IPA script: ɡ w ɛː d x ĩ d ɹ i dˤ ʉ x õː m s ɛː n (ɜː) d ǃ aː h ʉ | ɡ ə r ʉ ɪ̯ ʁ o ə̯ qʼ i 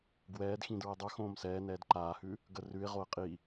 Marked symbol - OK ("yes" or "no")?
no